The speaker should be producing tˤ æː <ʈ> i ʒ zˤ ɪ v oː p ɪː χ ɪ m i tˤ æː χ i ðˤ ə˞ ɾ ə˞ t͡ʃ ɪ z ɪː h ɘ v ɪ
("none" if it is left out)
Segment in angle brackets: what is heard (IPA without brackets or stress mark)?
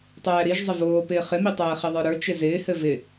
ɾ